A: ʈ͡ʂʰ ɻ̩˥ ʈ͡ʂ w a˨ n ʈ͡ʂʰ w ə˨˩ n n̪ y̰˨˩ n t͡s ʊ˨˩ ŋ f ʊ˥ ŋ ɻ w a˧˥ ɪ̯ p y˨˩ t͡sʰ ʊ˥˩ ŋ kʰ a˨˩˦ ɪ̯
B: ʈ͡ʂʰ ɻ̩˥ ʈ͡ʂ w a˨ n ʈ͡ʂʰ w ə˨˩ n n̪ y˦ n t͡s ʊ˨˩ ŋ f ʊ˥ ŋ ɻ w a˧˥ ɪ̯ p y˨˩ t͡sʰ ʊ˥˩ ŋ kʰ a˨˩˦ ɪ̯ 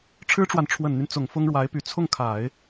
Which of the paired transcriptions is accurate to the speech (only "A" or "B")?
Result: B